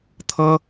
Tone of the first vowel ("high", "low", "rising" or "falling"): high